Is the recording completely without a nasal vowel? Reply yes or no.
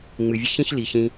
no